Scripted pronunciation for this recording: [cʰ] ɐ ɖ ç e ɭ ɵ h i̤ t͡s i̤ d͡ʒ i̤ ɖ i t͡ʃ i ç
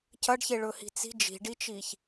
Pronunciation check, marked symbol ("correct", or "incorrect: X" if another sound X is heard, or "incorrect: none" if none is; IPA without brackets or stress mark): correct